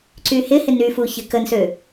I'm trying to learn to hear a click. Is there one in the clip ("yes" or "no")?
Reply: yes